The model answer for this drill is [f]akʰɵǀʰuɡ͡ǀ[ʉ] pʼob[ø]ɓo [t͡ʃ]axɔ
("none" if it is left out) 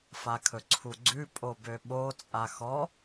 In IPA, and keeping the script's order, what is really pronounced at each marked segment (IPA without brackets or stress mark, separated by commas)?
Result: f, ʉ, ø, t͡sʼ